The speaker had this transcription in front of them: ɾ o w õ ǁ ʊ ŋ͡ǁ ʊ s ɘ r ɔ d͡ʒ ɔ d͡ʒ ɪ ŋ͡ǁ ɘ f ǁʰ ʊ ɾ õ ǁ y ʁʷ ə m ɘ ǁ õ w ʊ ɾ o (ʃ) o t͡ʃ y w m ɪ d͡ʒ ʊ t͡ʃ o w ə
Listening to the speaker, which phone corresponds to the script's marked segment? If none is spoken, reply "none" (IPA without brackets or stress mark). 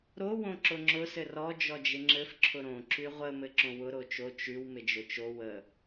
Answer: t͡ʃ